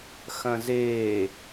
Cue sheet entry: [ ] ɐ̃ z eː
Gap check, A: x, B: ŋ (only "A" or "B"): A